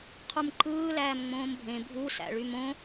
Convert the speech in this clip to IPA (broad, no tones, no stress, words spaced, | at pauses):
qʰumǃɯː læːmŋ͡mõːmbʱẽ bʱu sæ̰ɭymõ